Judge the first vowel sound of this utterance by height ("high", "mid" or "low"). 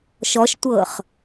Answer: mid